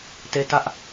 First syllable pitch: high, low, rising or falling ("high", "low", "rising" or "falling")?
high